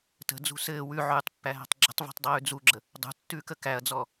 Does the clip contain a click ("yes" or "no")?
yes